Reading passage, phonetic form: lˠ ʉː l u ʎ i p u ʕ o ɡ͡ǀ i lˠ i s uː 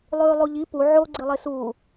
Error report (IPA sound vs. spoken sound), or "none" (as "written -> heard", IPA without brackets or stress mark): l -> lˠ